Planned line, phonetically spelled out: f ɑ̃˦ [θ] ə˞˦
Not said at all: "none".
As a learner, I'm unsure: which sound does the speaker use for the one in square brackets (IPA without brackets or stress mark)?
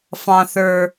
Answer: θ